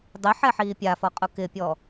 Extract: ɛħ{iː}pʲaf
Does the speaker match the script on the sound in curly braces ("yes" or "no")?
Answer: yes